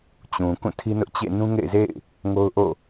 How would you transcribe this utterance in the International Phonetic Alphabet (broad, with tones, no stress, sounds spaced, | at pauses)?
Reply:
t͡ɕ ũ˨ k ũ˦˨ tʰ i˦ n ʊ˦ ʔ t͡ɕ ḛ˦˨ n ũ˦ ŋ ḛ˦˨ ɪ̯ z ḛ˦˨ ɪ̯ | ŋ o˦ ʊ̯ ʔ o̰˦˨